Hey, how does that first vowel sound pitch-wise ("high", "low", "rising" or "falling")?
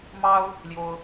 high